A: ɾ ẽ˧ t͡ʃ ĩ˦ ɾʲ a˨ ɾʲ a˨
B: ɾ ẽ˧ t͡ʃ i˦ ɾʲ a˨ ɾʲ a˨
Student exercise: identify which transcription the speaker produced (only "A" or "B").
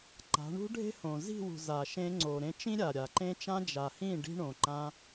A